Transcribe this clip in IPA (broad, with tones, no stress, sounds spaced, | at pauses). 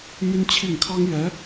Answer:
m y˥ n t͡ɕʰ i˥˩ ŋ kʰ ɑ˥ ŋ j ɛ˧˥